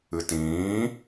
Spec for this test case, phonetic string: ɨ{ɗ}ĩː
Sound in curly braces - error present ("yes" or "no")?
yes